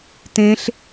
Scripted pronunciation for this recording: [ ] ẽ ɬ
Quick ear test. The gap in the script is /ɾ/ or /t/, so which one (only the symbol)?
t